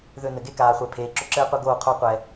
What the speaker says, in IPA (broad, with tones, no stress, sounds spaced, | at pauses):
ð ø˧ n ɘ˨ ɡ e˦ k aː˨ χʷ ɛ˨ pʰ eː˨ ǁ ʊ˧ ǁ ɘː˦ qʷ ɘ˦ ɡ oː˦˨ qʰ o˧ qʷ ɛ˨